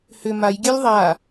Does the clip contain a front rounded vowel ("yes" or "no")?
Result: yes